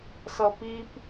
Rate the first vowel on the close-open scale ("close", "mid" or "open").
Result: mid